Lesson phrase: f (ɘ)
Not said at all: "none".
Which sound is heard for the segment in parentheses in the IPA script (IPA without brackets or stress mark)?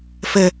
ɘ